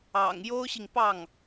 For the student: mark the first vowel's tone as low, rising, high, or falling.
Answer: low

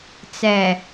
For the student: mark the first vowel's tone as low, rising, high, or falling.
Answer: low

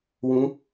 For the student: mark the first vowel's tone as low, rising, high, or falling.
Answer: rising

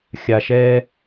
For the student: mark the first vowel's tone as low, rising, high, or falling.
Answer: low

